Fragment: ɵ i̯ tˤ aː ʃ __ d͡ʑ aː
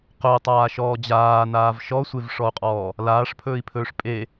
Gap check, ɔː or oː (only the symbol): ɔː